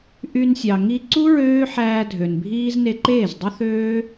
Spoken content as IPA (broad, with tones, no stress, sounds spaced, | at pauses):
ʔ y˧ n sʲ ɑ˨ ŋ i˧ ǀ u˦ ɹ øː˦ ħ æː˧ dʱ ø˨ n bʱ iː˦ z n e˧ ǃ eː˦˨ z dˤ u˦ θ øː˦